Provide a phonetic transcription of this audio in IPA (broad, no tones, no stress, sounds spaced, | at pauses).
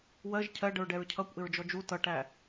w ɜ ʒ cʰ ɜ ɖ ə ɹ ɖ ɛ ɹ cʰ ʌ kʷ ʔ ɪ ɹ d͡ʒ ɔ d͡ʒ u t ʌ ʈ æ